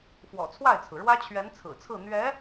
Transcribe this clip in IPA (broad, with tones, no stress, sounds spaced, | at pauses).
f w ɔ̰˨˩ t͡sʰ w a˥˩ ɪ̯ t͡sʰ ɹ̩˩ ɻ w ä˥ t͡ɕʰ ɥ ɛ˧˥ n t͡sʰ ɹ̩˨˩ t͡sʰ ɹ̩˥˩ n̪ ɥ ɛ˧˥